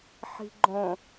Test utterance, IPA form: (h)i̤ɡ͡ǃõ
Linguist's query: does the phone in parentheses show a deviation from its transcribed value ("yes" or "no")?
yes